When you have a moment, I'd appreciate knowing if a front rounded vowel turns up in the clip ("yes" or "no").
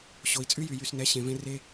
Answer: yes